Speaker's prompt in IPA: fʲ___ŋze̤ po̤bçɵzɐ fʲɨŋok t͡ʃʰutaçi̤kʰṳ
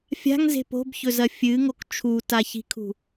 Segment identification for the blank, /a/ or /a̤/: a̤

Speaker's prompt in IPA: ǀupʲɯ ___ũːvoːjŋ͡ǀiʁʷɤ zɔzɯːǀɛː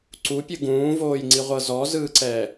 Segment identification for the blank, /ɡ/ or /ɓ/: ɡ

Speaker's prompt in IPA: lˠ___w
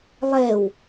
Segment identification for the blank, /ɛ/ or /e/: ɛ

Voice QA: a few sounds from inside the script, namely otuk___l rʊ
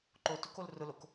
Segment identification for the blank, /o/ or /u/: o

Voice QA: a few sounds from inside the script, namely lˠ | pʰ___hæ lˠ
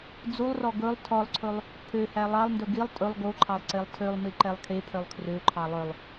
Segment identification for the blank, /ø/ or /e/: ø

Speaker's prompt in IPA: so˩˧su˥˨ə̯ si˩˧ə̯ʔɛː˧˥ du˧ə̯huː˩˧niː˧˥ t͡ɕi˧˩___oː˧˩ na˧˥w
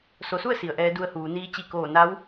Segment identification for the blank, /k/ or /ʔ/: k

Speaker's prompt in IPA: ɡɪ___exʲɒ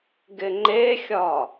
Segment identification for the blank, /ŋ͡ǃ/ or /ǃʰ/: ŋ͡ǃ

